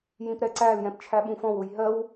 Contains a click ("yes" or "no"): yes